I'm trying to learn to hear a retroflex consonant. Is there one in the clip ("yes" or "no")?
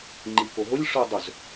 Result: yes